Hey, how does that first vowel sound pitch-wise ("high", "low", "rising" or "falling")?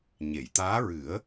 low